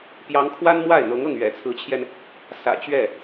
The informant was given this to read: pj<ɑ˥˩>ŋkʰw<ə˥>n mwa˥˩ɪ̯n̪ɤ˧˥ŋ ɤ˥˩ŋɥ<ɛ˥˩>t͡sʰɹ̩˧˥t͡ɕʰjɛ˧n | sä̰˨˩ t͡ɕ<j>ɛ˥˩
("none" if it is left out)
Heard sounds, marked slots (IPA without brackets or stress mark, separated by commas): ɑ˧˥, a˥, ɛ̰˨˩, ɥ